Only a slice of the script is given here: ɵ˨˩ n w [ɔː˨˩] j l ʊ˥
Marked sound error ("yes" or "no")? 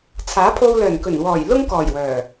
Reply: no